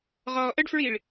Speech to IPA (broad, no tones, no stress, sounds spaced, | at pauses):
ʁ ɔː ʔ ə ɖ f ɹ i ɭ